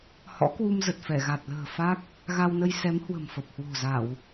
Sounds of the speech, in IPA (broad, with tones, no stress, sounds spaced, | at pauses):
h ɔ̰˧˥ k w u˧ m z ə˨˩ t̚ f ɛ˧˩ ɣ a˨˩ t̚ l ə̤ː˨˩ f a˦˥ k̚ | ɣ a˧ w n ə˧ j s ɛ˨˦ m h w ə̤˨˩ m f ə˨˩ p̚ h w o̤˨˩ z a˧˩˨ w